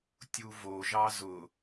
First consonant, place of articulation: alveolar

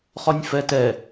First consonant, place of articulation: uvular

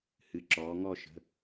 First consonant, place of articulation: glottal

